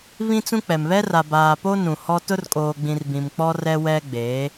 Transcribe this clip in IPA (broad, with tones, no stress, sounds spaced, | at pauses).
β ĩ˦ t͡s ũ˦ k͡p ɛ˨ m β ɛ˦ r a˨ b aː˨ p o˦ n ũ˨ h ɔ˦ t ʊ˦ r kʼ oː˨ ɡ͡b ĩ˨ r b ĩ˨ m k͡p ɔ˦ r ɛ˦ w ɛ˦ ɡ͡b eː˨˦